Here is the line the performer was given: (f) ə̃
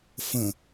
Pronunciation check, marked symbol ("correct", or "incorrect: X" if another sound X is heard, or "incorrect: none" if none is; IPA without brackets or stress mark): correct